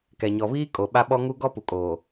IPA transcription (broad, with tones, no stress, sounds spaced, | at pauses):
k ɛ˨ ɲ ɔ˨ β iː˦ kʼ o˨ ɓ a˦ ɓ ɔ˦ ŋ u˦ ɡ ɔ˦ p u˨ kʼ oː˨